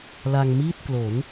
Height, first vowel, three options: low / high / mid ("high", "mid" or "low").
low